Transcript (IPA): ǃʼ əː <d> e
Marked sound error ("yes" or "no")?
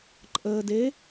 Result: no